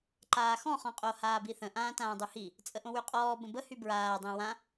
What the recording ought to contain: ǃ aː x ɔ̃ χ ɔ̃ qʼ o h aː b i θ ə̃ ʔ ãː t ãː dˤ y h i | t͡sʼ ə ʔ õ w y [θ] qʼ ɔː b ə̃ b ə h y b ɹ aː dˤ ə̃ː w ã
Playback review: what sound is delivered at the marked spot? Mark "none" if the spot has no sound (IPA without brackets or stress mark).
none